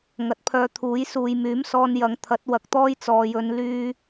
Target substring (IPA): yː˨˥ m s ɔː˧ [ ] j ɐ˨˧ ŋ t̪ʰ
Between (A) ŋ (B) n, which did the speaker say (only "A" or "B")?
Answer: B